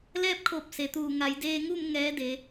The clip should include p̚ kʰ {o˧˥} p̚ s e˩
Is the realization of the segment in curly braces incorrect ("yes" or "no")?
yes